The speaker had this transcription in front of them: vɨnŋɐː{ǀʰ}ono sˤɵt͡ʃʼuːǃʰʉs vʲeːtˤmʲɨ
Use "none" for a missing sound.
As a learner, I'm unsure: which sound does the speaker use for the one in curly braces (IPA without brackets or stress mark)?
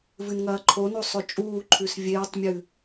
ǃʰ